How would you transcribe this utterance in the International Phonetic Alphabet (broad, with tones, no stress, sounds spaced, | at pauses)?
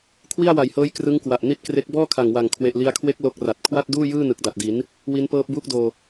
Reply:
kʰ w i˥˩ a̯ w a˨˩ j h ɤː˦˥ j k r ɯ˦˥ ŋ k w a˨˩ ʔ n i˥˩ t̚ k r e˦˥ k̚ b ɔː˥˩ kʰ a˨˩ ŋ w a˨˩ ŋ kʰ w e˨˩ ʔ l i˧ a̯ kʰ w e˦˥ k̚ l o˦˥ k̚ r a˨˩ t̚ kʰ w a˥˩ t̚ d uː˥˩ j ɯː˥˩ n ɯ˨˩ k̚ d a˨˩ t̚ d i˩˦ n | w i˦˥ n p ɤː˦˥ p̚ b uː˦˥ k̚ d oː˧